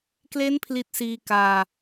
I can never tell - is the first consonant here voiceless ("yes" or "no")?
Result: yes